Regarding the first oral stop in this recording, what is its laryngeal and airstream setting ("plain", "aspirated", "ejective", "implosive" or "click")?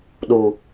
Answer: implosive